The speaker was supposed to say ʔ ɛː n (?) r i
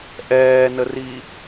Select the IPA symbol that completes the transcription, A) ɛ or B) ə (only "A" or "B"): B